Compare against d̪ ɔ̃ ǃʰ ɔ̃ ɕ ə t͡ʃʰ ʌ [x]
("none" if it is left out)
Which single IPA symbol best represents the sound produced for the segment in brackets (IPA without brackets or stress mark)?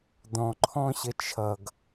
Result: ɡ